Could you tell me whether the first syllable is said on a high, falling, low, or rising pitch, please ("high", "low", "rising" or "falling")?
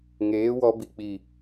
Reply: rising